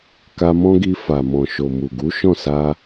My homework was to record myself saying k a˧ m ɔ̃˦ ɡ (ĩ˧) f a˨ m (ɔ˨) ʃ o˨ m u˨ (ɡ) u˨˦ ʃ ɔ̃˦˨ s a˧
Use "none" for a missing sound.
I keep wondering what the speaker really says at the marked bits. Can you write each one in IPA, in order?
i˧, ɔ̃˨, ɡ

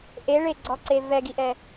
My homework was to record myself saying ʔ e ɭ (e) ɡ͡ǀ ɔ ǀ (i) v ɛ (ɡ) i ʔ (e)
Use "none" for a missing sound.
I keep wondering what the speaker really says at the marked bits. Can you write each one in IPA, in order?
e, e, ɡ, ɛ

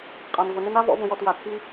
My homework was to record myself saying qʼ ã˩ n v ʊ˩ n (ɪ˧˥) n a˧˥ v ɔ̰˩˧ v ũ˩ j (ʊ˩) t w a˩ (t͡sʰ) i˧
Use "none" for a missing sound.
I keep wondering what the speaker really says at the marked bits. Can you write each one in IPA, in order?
ɪ˧˥, ɔ˩, t͡sʰ

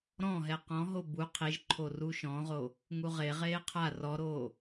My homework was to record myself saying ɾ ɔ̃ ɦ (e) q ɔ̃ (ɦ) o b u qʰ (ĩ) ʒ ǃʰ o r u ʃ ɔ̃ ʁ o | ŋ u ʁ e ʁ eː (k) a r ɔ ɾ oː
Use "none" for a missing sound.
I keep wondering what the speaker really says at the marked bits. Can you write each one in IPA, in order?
ɛ, ɦ, i, qʰ

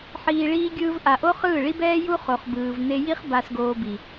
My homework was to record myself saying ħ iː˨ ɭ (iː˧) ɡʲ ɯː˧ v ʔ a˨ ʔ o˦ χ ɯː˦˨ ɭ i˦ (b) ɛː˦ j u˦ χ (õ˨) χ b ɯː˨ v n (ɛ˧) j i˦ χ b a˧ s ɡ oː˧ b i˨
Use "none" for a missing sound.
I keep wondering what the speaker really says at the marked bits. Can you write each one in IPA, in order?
iː˧, b, o˨, e˧

